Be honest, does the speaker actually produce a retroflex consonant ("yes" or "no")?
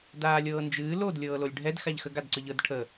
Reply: yes